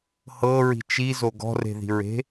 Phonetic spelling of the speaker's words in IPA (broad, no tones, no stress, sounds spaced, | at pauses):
h ɤ ɹ i̤ t͡ʃ i z o ɡ ɔ̤ r e̤ ð i̤ ɹ e̤